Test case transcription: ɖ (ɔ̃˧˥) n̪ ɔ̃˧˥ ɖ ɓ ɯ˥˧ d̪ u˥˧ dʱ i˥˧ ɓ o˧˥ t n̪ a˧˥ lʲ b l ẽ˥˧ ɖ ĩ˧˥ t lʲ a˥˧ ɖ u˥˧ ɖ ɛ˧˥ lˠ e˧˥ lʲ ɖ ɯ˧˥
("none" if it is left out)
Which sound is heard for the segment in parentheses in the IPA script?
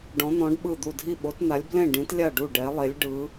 ɔ̃˧˥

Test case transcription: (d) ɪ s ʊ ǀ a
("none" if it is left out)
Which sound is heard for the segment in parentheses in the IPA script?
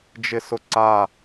d͡ʒ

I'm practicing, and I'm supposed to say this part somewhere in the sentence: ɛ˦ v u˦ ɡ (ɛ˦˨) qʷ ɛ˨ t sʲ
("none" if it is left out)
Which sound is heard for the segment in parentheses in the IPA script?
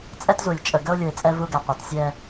ɛ˨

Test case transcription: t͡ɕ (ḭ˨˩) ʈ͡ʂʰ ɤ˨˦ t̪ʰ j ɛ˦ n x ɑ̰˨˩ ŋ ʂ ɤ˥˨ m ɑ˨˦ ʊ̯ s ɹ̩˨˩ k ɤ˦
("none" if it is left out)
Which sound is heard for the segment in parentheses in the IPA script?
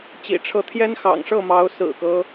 ḭ˨˩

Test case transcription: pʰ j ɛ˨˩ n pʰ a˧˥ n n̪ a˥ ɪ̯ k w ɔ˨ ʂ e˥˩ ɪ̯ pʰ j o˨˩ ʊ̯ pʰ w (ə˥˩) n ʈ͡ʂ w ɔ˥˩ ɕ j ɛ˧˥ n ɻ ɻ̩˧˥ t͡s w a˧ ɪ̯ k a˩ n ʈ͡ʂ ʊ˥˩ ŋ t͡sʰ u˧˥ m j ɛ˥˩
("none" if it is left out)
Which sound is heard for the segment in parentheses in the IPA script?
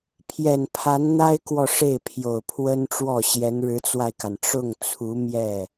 ə˥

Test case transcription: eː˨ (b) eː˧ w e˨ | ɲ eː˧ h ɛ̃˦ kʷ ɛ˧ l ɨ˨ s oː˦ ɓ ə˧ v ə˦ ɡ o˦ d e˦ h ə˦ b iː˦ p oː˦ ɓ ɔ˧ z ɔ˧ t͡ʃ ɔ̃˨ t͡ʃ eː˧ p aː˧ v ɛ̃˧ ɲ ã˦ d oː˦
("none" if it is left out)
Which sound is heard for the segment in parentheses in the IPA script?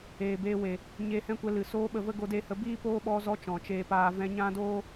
b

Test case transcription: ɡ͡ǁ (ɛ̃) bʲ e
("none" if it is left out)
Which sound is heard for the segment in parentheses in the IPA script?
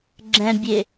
ɛ̃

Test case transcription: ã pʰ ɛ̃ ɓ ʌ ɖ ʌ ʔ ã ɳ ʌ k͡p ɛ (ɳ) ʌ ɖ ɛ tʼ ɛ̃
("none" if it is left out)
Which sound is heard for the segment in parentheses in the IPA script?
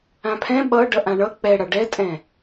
ɽ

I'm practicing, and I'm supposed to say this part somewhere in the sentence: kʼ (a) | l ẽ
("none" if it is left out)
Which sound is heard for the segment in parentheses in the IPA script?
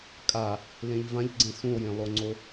a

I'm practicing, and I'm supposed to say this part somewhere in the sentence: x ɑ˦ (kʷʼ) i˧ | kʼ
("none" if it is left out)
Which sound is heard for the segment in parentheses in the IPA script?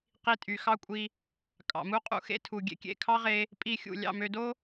kʷʼ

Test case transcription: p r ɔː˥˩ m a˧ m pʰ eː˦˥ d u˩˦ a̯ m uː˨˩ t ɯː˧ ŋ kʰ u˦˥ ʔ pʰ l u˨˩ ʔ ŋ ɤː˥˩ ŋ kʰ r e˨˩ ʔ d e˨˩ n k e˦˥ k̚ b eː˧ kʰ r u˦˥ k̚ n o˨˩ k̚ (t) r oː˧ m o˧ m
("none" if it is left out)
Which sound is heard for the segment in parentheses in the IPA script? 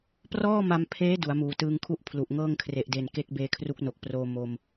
p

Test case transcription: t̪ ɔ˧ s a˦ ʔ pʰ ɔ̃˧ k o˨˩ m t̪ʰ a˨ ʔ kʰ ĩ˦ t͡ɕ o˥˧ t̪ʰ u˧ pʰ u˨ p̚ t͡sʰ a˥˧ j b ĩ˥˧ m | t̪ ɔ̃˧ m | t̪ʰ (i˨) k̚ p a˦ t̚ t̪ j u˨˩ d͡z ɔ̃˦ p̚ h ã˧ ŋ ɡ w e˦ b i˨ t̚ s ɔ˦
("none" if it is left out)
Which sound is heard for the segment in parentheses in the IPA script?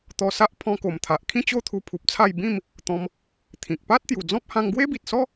ĩ˨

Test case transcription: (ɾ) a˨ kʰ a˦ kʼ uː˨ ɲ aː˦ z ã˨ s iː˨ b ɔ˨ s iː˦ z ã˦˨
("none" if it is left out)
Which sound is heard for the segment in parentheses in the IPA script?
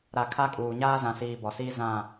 ɾ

